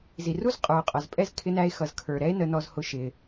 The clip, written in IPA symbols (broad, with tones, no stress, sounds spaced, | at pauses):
z i˩ r u˥ z qʼ ə˞˩ o̯ qʼ ʌ˩ z pʼ ɛ˥ z kʰ ɪ˥ n æ˥ e̯ x ʌ˩ z kʰ ə˞˩ ɾ ɛ˥ e̯ n ə˥ n ɔ˥ z h ʊ˥ ʃ ɪ˩